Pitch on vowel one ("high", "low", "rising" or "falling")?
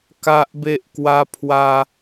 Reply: high